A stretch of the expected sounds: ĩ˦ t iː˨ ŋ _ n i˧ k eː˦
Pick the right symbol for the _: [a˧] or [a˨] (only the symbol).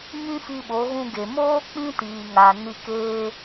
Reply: a˨